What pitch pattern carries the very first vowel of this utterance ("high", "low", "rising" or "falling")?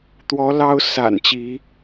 rising